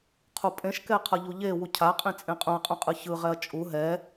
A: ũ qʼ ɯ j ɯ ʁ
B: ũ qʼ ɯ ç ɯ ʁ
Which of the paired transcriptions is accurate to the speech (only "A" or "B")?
B